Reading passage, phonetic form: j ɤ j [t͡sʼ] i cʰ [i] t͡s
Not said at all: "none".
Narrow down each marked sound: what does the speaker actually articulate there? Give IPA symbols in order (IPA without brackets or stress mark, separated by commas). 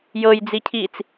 d͡z, iː